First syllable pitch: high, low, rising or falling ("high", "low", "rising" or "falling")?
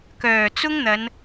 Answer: low